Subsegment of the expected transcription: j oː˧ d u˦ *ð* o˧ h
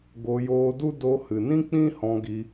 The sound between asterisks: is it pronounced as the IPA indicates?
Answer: no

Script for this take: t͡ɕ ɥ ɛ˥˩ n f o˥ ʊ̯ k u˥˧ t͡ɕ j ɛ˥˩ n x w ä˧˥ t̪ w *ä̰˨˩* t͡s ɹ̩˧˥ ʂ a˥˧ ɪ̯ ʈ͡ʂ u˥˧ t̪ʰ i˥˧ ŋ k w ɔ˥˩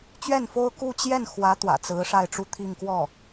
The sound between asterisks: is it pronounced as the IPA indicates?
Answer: yes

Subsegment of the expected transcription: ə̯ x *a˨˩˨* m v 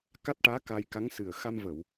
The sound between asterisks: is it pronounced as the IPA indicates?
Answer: no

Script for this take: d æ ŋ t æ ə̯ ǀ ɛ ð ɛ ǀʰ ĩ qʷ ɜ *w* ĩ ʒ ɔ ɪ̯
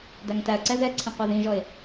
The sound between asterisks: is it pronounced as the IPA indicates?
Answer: no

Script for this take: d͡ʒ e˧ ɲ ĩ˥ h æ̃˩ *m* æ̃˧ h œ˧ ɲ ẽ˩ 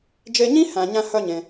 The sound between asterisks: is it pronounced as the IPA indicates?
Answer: no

